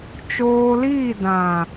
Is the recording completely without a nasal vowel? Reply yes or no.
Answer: no